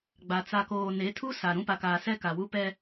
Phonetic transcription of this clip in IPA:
ɡ͡b a˨ t͡s a˨ k oː˨ n e˨˦ tʰ u˦ s a˨ ɾ ũ˦ p a˨ k aː˨ s ɛ˦ k a˨ w u˦ p ɛ˦

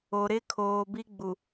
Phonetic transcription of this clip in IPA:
o˨ ɾ ɪ˦ kʰ oː˨ b i˦ ɡ͡b u˨

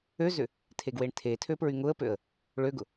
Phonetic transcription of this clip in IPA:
ø z ʏ | tʰ e ɡ w e ɳ tʰ e tʰ ø p ɹ y ŋ ʊ ə̯ p ø ə̯ | ɭ ø ɡ ʊ

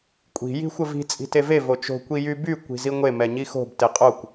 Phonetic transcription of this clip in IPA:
kʷʼ i̤ j i̤ xʷ ə v i̤ t͡sʼ i̤ t e v e v o t͡ʃ o̤ kʷ i j y b y kʷ i̤ z i ŋʷ e m ɛ ɲ i x o̤ b t e qʼ o kʷ

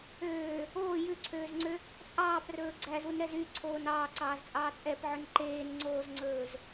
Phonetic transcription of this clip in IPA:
øː | oː j ʉ ǀʰ øː z ŋ͡ǀ ø | t͡sʼ ɑː p r ɵː ɡ͡ǀ æ z u n ɾ ɛ z y ǀʰ oː n ɑː ǀ ɑː z t͡sʼ ɑː t͡sʼ ɛ p ʕ ɵ n ǃ eː n ŋ͡ǀ oː z ŋ͡ǀ ɵː z

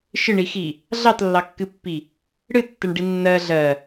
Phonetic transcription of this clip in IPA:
ʃ ɨ ɳ i x i | ɮ ɑ t lː ɑ kː ɨ pː i | ɽ ɨ tː ɜ ɳ ɖ i nː ɜ ɮ ɜ

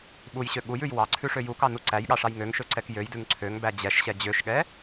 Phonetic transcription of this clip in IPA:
ɓ u j ɕ ø ɠ u j ʉ j w ɑ ǀʰ ʉ ʂ ø j u k ɑ n u ǀ æ j ɠ ɑ ʂ ɑ j ŋ ø ŋ ʃ ø ǀ ɛ k j ø j d ʉ ŋ ǀʰ ø ŋ b æ d͡ʑ ɛ ʃ ɕ ɛ d͡ʑ ø ʃ ɠ ɛ

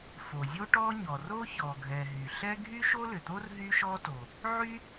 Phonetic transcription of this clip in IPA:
f o˩ zʲ o˥ ʈ ɔ˥ ɲ ɔ˩ r o˥ ç ɔ˩ ɡʱ ɛ˩ ɦ y˩ ɬ ɛ˥ ɡʱ y˥ ʃ o˥ l ʏ˩ t̪ o˥ r ɦ y˥ ʃ ɔ˥ t o˩ | ʕ y˥

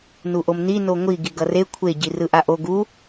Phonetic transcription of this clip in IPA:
n u ʔ o m n i n o ŋʷ i ɡ i ɡ ʌ r e kʷʰ e ɟ i r ɯ ʔ a ʔ o ɡ u

